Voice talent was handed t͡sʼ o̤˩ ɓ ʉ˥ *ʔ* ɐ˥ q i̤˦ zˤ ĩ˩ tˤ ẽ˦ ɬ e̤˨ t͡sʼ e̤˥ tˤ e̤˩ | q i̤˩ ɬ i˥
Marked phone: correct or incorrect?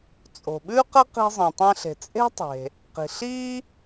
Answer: incorrect